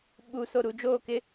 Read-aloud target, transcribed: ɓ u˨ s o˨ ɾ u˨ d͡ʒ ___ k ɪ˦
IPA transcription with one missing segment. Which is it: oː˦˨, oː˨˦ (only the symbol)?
oː˦˨